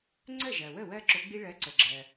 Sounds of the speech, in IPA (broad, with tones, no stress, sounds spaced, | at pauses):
ŋ͡ǀ ə˥˩ ʒ ɜ˩ w ə˥˩ w ɜ˦ ǁ ʊ˨˦ ɡ͡b i˦ ɭ ɜ˨˦ ǀ ə˩ ɡ͡ǁ ɜ˩